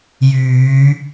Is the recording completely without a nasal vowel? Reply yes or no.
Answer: yes